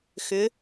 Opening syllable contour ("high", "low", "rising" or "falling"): rising